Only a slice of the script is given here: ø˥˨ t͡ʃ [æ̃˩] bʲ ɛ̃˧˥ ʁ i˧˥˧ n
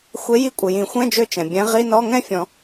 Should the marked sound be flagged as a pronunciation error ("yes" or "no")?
yes